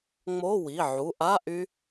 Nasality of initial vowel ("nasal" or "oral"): oral